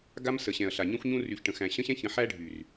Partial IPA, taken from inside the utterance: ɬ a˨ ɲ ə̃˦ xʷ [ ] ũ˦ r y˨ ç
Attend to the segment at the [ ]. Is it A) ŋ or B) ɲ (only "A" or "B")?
B